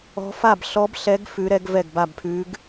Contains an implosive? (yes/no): no